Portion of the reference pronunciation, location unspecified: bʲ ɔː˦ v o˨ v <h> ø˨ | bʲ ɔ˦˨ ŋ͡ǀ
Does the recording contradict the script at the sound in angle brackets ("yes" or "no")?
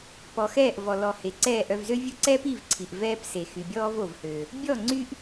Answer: no